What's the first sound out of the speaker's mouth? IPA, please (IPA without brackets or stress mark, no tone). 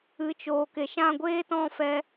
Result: ɨ